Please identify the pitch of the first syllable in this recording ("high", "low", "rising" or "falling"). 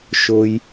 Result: low